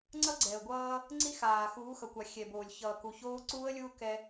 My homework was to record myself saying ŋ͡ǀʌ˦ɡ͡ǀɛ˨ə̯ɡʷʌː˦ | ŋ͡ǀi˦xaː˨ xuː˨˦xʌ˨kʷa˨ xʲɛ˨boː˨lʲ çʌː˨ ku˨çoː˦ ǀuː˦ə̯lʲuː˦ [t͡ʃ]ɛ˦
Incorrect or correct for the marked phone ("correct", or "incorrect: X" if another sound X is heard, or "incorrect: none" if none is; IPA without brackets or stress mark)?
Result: incorrect: k